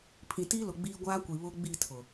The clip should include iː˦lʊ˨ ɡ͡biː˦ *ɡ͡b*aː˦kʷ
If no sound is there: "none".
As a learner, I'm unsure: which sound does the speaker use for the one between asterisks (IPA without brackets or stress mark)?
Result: ɡʷ